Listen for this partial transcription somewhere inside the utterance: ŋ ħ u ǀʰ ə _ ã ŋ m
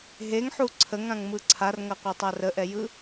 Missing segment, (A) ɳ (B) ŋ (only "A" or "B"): B